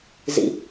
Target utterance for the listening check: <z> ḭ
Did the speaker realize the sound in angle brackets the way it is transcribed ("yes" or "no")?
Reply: yes